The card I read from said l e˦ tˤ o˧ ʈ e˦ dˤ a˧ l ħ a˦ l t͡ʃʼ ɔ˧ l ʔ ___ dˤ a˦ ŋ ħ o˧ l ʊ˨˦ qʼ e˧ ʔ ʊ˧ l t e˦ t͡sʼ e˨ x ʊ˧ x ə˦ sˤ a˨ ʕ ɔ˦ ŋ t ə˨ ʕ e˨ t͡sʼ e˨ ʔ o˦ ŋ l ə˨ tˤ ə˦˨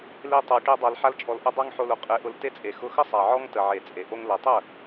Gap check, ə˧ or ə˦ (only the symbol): ə˦